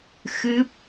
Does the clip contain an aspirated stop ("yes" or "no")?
no